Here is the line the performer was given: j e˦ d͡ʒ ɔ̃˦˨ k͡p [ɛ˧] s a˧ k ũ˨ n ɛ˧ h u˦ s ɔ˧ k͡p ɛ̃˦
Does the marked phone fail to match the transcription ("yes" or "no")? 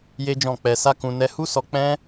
no